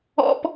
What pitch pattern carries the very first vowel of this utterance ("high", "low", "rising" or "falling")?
high